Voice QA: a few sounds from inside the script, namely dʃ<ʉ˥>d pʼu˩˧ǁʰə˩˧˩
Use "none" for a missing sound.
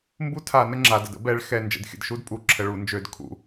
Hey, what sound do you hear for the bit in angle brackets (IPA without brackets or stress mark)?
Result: u˥